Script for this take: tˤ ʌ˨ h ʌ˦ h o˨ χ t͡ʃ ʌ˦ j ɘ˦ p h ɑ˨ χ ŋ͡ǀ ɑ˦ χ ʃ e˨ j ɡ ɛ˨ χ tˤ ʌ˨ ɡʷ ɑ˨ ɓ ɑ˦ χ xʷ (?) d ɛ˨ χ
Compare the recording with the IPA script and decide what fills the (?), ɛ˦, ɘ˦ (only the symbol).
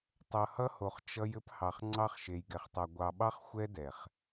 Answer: ɛ˦